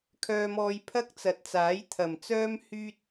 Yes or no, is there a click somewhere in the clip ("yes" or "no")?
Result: no